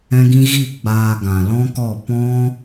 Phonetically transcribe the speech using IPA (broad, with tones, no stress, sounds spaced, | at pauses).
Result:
ɛ̃˦ ɡ ĩ˦ ɣ i˦˨ ɡ͡b aː˧ ɡ ã˨ l ɔ̃˦ k ɔ˦˨ p ɔ̃˦